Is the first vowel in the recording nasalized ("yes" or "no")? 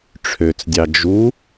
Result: no